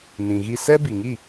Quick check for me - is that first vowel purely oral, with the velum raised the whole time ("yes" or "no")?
no